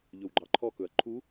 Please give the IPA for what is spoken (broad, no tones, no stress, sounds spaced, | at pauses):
ʎ ɵ w ɡ͡ǃ ɑ ǃʰ ɔ k ɵ ɐ̯ ǃʰ u